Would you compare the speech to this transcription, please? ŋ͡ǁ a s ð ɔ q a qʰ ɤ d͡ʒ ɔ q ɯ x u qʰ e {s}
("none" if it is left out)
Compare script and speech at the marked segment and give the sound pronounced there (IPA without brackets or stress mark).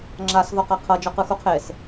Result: s